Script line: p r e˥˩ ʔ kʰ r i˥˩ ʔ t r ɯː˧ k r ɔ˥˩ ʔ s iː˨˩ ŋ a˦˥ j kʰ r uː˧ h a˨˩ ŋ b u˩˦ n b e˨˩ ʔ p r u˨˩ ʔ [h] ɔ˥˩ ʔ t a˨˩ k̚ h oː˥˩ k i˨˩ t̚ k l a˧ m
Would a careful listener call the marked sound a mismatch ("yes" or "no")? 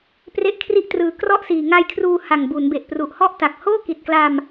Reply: no